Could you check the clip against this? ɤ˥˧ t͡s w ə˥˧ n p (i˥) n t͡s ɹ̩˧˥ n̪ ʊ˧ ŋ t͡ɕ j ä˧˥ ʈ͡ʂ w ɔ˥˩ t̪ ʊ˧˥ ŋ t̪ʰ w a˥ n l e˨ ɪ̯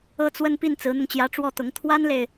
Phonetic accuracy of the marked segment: incorrect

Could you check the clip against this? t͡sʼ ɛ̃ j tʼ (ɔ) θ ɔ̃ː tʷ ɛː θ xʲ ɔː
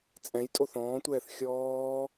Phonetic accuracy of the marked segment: incorrect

